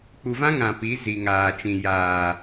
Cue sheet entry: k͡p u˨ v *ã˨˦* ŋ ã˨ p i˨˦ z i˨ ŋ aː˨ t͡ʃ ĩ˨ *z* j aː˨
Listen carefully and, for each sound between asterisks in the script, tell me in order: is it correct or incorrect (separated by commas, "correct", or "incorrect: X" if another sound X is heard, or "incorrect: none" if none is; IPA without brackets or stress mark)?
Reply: incorrect: ã˦, incorrect: none